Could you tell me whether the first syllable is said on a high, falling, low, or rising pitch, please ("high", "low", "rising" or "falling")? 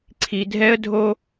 low